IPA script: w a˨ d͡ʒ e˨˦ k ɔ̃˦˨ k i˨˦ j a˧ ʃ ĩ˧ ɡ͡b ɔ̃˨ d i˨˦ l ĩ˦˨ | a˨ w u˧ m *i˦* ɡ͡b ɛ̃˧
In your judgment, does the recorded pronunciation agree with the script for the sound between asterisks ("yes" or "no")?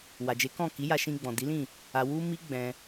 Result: yes